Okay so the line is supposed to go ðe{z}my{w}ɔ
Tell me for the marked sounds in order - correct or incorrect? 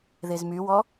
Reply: correct, correct

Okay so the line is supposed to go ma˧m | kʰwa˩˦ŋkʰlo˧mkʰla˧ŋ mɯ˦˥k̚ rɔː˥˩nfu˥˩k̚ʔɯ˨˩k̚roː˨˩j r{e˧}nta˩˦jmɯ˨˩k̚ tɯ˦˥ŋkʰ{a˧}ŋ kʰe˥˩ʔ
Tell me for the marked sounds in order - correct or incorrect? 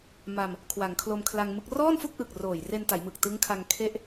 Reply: correct, correct

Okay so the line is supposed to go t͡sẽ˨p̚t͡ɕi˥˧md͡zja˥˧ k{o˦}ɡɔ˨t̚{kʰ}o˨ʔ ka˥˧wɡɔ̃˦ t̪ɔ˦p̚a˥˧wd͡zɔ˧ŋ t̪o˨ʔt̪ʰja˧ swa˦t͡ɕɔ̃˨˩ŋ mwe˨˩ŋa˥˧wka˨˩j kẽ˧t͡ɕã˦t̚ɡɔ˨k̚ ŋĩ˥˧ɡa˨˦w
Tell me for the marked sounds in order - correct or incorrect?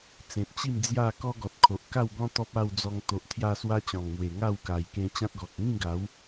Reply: incorrect, correct

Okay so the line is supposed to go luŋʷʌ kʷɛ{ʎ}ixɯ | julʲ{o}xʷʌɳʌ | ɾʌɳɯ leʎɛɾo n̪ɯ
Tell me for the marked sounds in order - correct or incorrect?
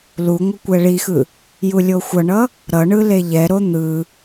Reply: incorrect, correct

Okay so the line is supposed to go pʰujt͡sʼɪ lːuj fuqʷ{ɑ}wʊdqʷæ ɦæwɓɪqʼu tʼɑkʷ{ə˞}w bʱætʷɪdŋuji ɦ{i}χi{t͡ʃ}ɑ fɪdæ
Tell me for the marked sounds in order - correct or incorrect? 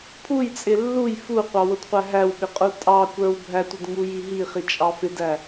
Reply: correct, correct, correct, incorrect

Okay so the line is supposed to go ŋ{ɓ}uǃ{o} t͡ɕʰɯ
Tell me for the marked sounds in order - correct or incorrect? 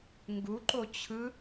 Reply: incorrect, correct

